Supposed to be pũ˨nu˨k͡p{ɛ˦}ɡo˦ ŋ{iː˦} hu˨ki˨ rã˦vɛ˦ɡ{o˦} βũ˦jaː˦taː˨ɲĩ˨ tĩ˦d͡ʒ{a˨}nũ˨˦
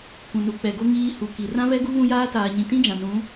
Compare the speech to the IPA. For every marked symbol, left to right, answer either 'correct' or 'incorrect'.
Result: incorrect, correct, incorrect, incorrect

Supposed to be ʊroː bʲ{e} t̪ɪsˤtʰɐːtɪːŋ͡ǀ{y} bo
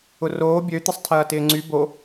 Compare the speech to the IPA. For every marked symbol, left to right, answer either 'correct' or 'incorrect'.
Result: incorrect, correct

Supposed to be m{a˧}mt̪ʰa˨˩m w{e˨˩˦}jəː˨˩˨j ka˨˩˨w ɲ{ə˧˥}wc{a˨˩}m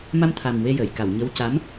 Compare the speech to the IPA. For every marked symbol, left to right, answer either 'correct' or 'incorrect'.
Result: correct, incorrect, correct, incorrect

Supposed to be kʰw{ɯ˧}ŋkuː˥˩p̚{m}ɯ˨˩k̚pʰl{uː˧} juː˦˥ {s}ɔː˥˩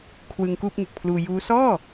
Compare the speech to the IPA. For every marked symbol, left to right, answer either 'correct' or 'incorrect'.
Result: correct, incorrect, correct, correct

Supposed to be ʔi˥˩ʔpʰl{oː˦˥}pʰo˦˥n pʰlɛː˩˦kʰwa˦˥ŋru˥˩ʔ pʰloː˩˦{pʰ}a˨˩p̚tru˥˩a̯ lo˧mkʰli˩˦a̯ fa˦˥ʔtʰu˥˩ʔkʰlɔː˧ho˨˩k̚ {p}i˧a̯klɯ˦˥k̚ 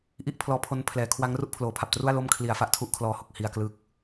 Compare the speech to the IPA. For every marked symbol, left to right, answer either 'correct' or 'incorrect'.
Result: incorrect, correct, incorrect

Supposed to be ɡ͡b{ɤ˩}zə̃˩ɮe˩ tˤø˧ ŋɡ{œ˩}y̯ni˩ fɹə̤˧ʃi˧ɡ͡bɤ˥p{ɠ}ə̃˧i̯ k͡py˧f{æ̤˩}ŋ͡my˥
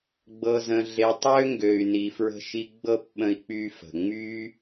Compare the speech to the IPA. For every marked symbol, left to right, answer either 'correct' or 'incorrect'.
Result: correct, incorrect, incorrect, incorrect

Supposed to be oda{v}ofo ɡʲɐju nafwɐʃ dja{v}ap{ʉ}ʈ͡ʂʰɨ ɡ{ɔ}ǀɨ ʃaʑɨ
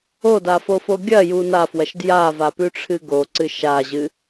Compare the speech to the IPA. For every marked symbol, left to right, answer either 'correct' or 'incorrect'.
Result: incorrect, correct, correct, incorrect

